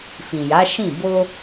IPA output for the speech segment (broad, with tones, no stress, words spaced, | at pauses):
fĩ˨ja˨˦ʃĩ˦˨ bo˧